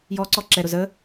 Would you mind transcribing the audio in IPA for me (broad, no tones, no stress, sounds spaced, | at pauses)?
j ɔ ǀ ɔ ǁ ɛ ɾ ʊ z ə